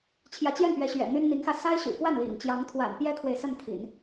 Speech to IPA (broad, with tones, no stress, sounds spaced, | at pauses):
t͡ɕʰ j ä˧˥ t͡ɕ j ɛ˥˩ n p ɥ ɛ˧˥ ɕ ɥ ɛ̰˨˩ n̪ y˥ n n̪ i˧˥ ŋ x ä˧ s a˥ ɪ̯ ɕ y̰˨˩ k w a˥˩ n l ḭ˨˩ ŋ t͡ɕ j ɑ˧˥ ŋ t̪ʰ w a̰˨˩ n p j ɛ˥ kʰ w e˨ ɪ̯ s ə˥˩ n t̪ʰ ḭ˨˩˦ n